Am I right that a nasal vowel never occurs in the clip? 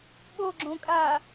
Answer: no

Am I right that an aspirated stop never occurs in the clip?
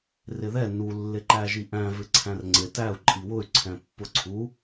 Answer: no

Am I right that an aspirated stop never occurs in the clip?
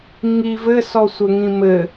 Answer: yes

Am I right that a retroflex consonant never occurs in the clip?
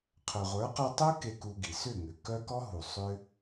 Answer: yes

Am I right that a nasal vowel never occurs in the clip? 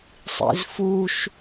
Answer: yes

